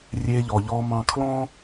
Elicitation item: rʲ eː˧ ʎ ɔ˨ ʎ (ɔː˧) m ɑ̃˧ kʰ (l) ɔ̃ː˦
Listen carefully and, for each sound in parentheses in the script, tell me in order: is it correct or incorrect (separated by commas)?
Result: correct, correct